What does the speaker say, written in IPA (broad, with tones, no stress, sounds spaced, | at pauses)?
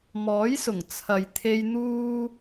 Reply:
m ɔː˨˥ j s ʊ˨˩ ŋ t͡sʰ ɐ˨ j t̪ʰ e˧ j n̪ uː˥